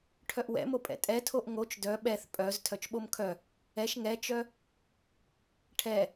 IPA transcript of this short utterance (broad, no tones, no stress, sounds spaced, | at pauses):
ʈʰ œ ʔ w ɛ̰ m o pʼ ɛ̰ tʼ ɛ tʰ o ʔ ŋ o t͡ʃ d œ ɓ ɛ θ pʼ œ z tʰ œ t͡ʃ ɓ o m kʰ œ | ɛ ʃ ŋ ɛ t͡ʃ œ | ʈʰ ɛ